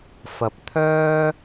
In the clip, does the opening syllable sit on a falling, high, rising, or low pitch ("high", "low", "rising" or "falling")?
low